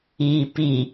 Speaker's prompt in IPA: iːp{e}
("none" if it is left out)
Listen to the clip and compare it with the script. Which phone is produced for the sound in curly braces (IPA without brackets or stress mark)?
i